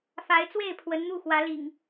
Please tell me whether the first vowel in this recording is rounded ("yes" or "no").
no